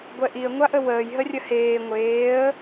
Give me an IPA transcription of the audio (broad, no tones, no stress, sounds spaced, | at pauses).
ɡʷ ɛ ʔ i ə̯ ŋʷ a ʔ ə w əː j ɦ ə rʲ ə h eː ŋʷ eː ə̯